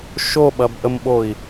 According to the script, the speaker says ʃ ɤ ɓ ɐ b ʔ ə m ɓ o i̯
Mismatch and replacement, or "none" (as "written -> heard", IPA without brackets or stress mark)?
ɤ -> o